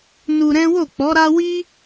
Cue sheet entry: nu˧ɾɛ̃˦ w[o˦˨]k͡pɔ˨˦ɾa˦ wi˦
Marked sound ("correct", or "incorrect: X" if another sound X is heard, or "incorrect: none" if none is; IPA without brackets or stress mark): correct